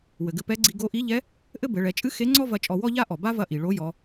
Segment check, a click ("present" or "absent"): present